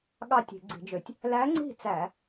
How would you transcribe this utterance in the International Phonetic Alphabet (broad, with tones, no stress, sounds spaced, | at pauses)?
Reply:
ɠ ɑ˥˨ tʲ e̤˧˩˧ ɡ͡ǀ i̤˧˩˧ d͡ʒ ø˧˩˧ tʲ | l æ˧˥ ŋ͡ǀ i̤˥˨ t͡s æ˧˩˧